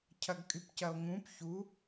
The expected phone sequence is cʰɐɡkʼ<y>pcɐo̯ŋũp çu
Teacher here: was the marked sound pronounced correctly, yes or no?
yes